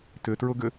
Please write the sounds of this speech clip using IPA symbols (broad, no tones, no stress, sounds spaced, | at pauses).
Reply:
t ʏ t ɹ ʊ ɡ ʏ